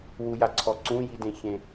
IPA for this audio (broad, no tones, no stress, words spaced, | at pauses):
wujaǀʰɔ ǀũjidẽçẽ